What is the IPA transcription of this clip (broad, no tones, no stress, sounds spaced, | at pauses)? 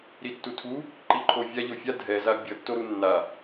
ɾ i tː u tʰ u | ǃ i ǃʰ o vʲ a ʎ o fʲ a dʱ ɛ z a bʲ ʌ tː o ɾ u nː a